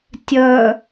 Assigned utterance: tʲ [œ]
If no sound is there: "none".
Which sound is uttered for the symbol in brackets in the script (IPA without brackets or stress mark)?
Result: œ